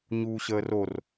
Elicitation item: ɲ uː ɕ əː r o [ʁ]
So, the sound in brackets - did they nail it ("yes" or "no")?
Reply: no